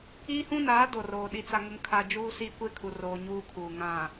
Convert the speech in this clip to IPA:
i˦ h ũ˦ n aː˨˦ d o˨ r oː˨ ɗ i˨ t͡s a˨ ŋ ʊ˨ ŋ kʰ a˨ d͡ʒ uː˦ s iː˦ kʷ e˦ kʰ u˨ r oː˨ ɲ uː˦ kʰ uː˨ ŋ ã˨

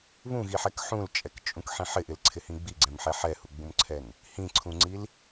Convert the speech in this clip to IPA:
β ũ ɣ i ħ ɛ k ħ ũ l t͡ʃʼ ɛ k t͡ʃʼ ũ k ħ ĩ ħ ɪ ʔ ɪ l ǀʰ ɪ h ĩ ɡ͡b i ɡ͡ǀ ɛ̃ m ħ ɛ ħ ɛ h u ɡ͡b ũ m ǀʰ ɛ n | h ĩ ǀʰ ũ ŋ͡ǀ i l

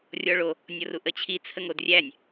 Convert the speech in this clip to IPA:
rʲ ɔ ɭ o | nʲ ɔ r u ʔ ə t͡ɕʰ i t͡sʰ ə ŋ o d rʲ æ nʲ

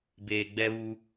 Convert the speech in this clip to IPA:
b eː˨ ɡ͡b ɛ˦ β u˦

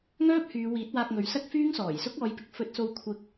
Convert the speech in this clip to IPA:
ŋ œː˥ p̚ h yː˨˧ w iː˨˥ t̚ w aː˧ k̚ ŋ ɵ˨˧ ɥ s ɐ˥ k̚ f yː˥ ŋ s ɔː˨˩ j s ʊ˥ k̚ ɔː˨˧ j p ɪ˨ k̚ f ɵ˧ t̚ s o˧ w kʷʰ ɪ˧ k̚

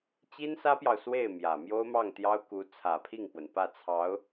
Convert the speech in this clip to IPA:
t͡ɕ i˥ n s ä˥ p j ɑ˨ ʊ̯ s w e˥˩ ɪ̯ m j ä˨˩ m j o˥ ʊ̯ m ɑ˥˩ ŋ t̪ j ɑ˥ ʊ̯ k u˧˥ t͡sʰ ä˨˩ pʰ i˥˩ ŋ p w ə˩ n p ä˥˩ t͡sʰ ɑ˧˥ ʊ̯

